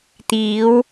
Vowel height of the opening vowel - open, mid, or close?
close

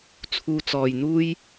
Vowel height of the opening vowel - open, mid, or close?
close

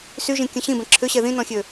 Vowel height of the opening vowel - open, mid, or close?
close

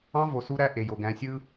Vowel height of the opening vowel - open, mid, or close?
open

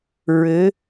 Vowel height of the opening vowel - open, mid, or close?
mid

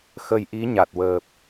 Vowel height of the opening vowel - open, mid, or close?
mid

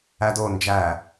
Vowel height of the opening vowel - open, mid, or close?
open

